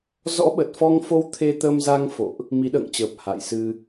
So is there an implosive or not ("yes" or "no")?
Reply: yes